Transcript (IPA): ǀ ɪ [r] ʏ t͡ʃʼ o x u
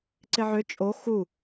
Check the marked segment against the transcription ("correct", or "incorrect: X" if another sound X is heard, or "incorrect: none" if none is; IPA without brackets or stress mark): incorrect: ʕ